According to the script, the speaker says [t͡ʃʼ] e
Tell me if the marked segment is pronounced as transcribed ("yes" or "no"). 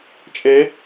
yes